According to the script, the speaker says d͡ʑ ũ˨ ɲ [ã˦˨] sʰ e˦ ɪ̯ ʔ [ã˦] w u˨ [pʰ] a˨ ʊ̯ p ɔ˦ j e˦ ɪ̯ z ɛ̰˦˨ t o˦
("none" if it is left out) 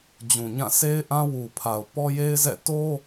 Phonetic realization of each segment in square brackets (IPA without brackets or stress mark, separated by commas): ã˦˨, ã˦, pʰ